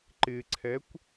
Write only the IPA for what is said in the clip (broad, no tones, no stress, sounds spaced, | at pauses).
ǃ ɪ ǀʰ ɛ kʷ